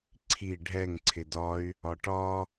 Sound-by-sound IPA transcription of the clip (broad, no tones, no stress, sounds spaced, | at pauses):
ǀʰ i ɖʱ ɛ ŋ ǀʰ ɪ d ɒ y̯ | ɒ ʈ ɒ